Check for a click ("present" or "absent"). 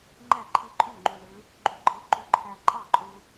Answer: present